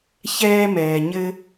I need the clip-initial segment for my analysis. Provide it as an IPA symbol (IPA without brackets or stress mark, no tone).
ç